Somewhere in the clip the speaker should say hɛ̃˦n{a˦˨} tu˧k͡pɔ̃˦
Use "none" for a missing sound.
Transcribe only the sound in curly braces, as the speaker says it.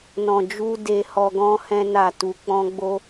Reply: a˦˨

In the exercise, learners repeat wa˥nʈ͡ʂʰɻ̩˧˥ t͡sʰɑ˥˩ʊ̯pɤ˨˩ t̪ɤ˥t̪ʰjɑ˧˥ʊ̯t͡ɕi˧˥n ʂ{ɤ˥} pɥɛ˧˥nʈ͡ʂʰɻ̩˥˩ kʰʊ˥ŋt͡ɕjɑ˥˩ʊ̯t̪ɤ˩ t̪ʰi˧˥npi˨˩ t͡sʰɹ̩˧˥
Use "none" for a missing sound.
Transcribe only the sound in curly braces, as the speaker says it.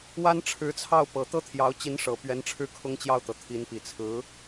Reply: ɤ˨˩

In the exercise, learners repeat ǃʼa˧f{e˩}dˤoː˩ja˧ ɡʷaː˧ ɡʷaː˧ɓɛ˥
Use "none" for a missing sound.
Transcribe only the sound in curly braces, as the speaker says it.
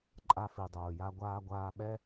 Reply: i˩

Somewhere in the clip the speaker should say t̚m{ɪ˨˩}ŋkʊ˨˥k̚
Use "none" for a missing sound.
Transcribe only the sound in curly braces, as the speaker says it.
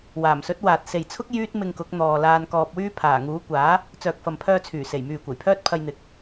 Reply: ɪ˧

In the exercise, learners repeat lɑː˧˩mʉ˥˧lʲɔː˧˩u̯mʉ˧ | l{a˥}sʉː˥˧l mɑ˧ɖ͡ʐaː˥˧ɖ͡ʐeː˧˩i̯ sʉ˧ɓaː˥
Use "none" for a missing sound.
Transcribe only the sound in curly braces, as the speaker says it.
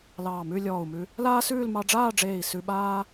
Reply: aː˥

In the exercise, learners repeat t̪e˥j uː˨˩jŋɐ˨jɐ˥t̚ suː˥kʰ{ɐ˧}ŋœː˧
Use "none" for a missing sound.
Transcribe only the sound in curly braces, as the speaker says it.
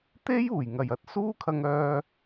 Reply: ɐ˧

